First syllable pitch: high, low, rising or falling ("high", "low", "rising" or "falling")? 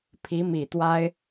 rising